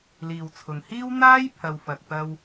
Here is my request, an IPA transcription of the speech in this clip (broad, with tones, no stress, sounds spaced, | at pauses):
l iː˨ w t͡sʰ ʊ˨ ŋ h iː˥ w n̪ aː˥ j pʰ ɐ˨ w f ɐ˨ k̚ t̪ ɐ˧ w